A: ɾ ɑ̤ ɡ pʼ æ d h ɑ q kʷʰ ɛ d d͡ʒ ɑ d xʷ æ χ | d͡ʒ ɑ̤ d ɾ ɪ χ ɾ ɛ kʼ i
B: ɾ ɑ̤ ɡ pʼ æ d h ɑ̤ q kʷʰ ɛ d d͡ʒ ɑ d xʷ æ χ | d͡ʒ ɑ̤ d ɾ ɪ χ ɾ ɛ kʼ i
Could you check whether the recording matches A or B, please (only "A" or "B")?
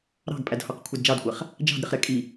A